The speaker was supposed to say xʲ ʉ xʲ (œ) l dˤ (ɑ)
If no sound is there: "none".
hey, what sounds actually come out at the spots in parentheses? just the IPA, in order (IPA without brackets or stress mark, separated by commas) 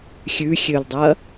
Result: ø, ɐ